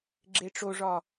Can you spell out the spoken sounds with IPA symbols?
ɡ͡ǁ e ʈ͡ʂ o ʐ ɒ

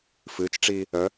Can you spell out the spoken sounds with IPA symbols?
f ɨ t͡ʃ ʈ͡ʂ iː | œ

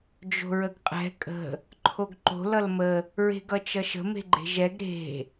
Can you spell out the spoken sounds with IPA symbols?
d͡ʒ o̤ ɹ ə ɡ qʼ ɛ̤ kʼ ə̤ | ǃʰ o ɡ ǃ o̤ l ʌ l m ə | ɹ e̤ ɡ ʌ t͡ʃ ʌ ʃ ə̤ m e̤ ɡ͡ǃ e̤ ʒ ɛ ɡ ɾ e̤

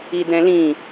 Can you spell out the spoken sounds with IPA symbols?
i d̪ ɛ̃ l ĩ

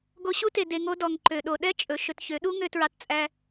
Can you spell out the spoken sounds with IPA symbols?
ɡ o˧ ɕ u˦ t e˨ d e˨ ŋ o˧ d ɔ˨ ŋ ǃ ø˨ ɗ o˨ ɗ ɛ˦ t͡ʃʼ ɵ˨ ʃ ɵ˧ t ç ø˨˦ ɗ u˦ ŋ ø˧ t ɹ ɑ˧ t t͡sʼ æ˧

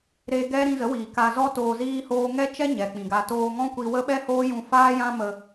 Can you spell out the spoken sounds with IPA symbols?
ɾ e˦ ɡ ɛ˦ ɾ ĩ˧ z ə˨˦ w iː˨ k a˧ z ɔ˦ t oː˧ z iː˦ h oː˦ ŋ ɛ˦ t͡ʃ ɛ˦ ɲ ɛ˨ k͡p ĩ˨ ɡ a˧ t oː˧ ŋ ɔ̃˦ kʷ i˧ w ə˦ ɓ ɛ˦ h oː˦ j ũ˧ f aː˦ j ã˦ m ə˧

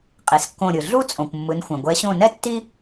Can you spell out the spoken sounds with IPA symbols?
qʼ e˩ s kː õ˧˩ ɾʲ ɯ˩ ɮ u˦ t͡sʼ õ˩ kʷ mː ɯ˩˧ n xʷ ɛ̃˩ ɡʷ ɛ˩˧ ɕ õ˧˩ n ɛ˦ tː i˦

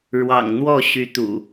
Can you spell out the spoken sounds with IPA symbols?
ɻ w ɑ̰˨˩ ŋ n̪ w ɔ˥˨ ɕ y˨˦ t̪ ṵ˨˩

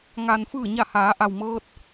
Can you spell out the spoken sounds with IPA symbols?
ŋ a˩ n f ɯː˧˩ ɲ a˧˩ h aː˩˧ ʔ a˩ w m ɤː˧ t̚

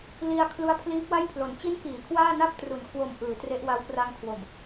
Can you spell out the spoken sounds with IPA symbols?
l i˧ a̯ kʰ l u˦˥ a̯ pʰ l iː˦˥ p̚ w a˥˩ j pʰ l o˩˦ n t͡ɕ i˦˥ n p iː˩˦ kʰ w aː˥˩ n a˥˩ p̚ t r u˩˦ n kʰ w o˨˩ m ʔ ɯː˩˦ t r e˦˥ ʔ w a˦˥ w p r a˧ ŋ kʰ w o˨˩ m

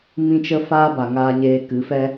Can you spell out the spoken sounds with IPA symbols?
m ĩ˦ t͡ʃ ə˦ f aː˦ b a˨ ŋ aː˧ ɲ eː˧ k ɨ˨˦ f ɛ˦

